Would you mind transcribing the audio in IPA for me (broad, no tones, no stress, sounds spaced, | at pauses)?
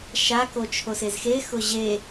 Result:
ʃ a k o t͡ʃʰ o s e z x e x ʊ ʑ e